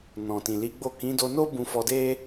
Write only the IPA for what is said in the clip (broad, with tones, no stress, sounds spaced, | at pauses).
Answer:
n ɔ̃˨ t ĩ˨ l i˨˦ ɡ͡b o˦˨ k ĩ˨˦ d o˧ n o˦ b ũ˧ f ɔ˧ d e˦